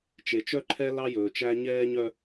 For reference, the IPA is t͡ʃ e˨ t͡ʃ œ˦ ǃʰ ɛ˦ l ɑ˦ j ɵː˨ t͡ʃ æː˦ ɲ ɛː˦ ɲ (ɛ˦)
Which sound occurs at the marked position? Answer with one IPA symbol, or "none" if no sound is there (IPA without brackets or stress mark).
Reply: œ˦